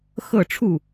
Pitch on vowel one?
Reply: falling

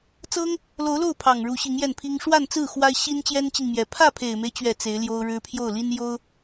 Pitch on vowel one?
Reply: high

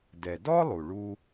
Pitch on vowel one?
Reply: low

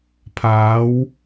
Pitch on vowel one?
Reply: rising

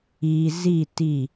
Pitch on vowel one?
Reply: low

